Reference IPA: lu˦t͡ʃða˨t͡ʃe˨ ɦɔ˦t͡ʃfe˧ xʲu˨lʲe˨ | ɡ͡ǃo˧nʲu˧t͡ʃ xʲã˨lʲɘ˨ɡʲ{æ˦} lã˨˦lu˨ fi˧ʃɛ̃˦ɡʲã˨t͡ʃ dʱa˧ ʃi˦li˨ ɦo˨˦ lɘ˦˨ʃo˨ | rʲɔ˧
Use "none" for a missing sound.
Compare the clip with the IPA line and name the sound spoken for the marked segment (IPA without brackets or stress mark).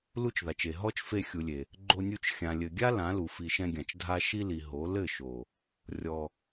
a˦